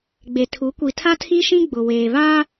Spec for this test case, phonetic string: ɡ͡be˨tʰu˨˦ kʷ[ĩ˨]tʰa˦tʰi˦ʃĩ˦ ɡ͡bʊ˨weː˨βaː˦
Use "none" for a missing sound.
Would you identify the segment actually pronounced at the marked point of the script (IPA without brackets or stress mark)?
i˨